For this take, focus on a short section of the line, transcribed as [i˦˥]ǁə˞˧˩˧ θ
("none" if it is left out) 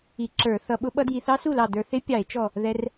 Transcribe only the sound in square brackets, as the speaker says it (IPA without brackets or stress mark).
i˧˩˧